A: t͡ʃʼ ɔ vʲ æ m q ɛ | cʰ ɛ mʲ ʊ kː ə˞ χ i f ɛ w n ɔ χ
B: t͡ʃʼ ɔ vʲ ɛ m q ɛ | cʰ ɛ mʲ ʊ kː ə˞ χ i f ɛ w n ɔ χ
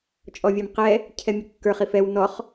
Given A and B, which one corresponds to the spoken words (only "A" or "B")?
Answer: A